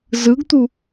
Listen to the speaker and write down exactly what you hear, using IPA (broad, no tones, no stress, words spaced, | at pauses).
zɯɡt̪u